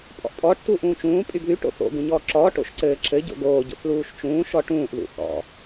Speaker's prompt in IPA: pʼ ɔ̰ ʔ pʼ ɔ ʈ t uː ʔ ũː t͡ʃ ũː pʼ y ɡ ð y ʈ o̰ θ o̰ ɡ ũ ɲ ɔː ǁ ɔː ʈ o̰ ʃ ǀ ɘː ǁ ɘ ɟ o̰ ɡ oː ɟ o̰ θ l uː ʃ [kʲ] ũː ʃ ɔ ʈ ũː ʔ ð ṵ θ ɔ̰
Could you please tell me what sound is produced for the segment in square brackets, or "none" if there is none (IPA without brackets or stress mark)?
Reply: t͡ʃ